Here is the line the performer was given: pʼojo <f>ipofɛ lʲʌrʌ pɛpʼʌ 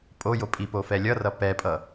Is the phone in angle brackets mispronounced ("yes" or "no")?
yes